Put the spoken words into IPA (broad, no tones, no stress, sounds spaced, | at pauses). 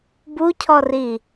b u cʰ ɔ r i